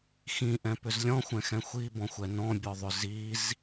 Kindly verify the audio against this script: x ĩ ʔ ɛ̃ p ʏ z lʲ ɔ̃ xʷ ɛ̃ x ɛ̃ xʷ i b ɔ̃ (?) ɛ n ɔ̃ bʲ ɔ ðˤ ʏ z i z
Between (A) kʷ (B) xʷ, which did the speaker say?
B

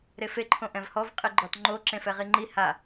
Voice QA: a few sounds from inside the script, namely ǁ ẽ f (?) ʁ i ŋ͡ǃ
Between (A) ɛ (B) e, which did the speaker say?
A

